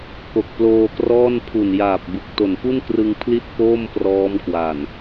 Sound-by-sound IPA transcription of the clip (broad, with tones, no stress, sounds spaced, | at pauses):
k o˨˩ k̚ p l oː˧ k r ɔː˥˩ n pʰ u˨˩ n j aː˨˩ p̚ b ɯ˨˩ k̚ t o˨˩ n f u˥˩ n k r ɯ˧ ŋ pʰ l i˥˩ t̚ k oː˥˩ m p r ɔː˦˥ m k w a˨˩ n